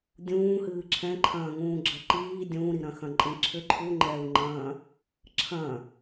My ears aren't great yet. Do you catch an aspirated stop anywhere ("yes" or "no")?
yes